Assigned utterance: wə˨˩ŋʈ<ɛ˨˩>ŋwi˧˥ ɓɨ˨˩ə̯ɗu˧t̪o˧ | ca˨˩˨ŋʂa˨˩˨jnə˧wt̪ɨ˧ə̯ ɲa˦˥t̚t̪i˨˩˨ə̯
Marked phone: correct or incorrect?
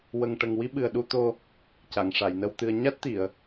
incorrect